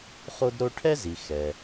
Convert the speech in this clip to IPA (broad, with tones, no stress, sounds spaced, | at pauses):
χ o˦ d ɾ o˦ ʈʰ ɛ˥ z i˨ x ɛ˨